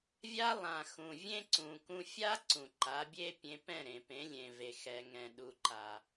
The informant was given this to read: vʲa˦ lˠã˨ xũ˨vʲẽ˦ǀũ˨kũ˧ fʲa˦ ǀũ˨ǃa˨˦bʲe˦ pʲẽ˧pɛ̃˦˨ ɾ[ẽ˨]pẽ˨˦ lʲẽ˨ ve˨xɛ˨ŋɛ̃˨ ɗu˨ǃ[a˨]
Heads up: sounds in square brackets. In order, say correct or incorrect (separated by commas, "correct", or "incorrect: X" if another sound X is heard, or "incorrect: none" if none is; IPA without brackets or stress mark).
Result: correct, correct